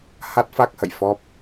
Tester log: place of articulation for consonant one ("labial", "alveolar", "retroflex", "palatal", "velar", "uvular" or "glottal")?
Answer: glottal